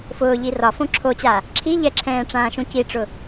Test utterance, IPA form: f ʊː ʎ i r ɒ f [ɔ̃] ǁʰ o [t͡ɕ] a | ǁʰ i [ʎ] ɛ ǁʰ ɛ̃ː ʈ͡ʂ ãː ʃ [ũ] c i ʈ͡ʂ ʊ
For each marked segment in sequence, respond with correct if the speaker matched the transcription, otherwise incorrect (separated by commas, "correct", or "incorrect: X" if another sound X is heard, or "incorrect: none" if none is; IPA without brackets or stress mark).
incorrect: õ, correct, correct, correct